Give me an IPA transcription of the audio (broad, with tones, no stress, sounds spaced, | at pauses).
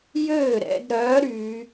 j øː˥˩ ɾ ɛ̰˩˧ d ɾ œː˨˥ ɾ y˩˧